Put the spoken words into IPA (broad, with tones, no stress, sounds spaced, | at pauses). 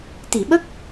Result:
t̪ i˨˩˨ ɓ ə˦˥ k̚